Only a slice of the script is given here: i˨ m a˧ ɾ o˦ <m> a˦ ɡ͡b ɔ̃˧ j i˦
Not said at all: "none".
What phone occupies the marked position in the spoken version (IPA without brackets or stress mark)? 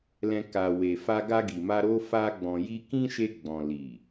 f